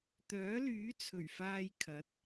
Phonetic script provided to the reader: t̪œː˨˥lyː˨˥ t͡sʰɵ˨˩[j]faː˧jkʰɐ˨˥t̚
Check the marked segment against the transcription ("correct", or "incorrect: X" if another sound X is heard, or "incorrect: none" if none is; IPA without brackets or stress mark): incorrect: ɥ